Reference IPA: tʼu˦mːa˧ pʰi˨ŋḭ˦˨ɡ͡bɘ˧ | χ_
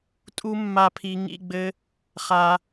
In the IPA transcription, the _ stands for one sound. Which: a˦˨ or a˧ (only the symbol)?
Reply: a˧